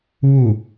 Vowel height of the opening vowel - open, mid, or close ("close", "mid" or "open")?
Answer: close